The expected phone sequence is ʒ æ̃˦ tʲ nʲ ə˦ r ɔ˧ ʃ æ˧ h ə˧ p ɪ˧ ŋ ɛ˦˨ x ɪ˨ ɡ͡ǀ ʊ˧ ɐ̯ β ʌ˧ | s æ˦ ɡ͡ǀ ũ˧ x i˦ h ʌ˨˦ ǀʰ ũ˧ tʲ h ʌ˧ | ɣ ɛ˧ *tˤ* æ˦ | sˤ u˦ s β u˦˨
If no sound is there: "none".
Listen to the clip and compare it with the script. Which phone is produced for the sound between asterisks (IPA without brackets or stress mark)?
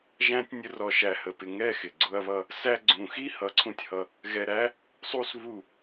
ɾ